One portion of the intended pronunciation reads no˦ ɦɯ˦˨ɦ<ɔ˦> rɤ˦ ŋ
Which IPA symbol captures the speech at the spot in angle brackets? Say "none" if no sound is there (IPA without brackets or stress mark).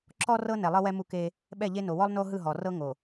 ɔ˨